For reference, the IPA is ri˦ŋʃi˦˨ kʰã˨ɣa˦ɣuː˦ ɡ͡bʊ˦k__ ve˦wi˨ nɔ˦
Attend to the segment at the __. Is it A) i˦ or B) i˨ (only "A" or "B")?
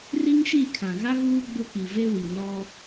B